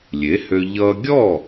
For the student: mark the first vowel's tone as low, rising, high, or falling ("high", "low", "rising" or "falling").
rising